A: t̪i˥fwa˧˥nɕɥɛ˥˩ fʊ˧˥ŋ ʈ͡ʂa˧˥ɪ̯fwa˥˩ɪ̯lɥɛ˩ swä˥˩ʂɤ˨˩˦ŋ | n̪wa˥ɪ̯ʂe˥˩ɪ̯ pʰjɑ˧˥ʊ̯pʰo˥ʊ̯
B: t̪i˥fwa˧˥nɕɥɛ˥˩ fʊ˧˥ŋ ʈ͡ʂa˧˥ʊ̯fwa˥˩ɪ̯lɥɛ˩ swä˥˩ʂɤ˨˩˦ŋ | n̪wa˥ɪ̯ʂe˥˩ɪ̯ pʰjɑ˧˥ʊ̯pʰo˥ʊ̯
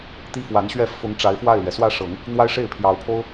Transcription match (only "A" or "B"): A